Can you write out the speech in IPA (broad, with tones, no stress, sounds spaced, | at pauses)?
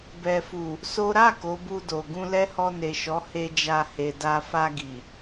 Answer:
b ɛ˨ f u˨ | s o˦ ɾ a˦˨ k o˨˦ b u˧ d o˨ ɡ ũ˧ l ɛ˦ h ɔ˧ n e˨ ʃ ɔ˨˦ h e˦ d͡ʒ a˦˨ h e˨ d a˧ f a˧ ɡ i˨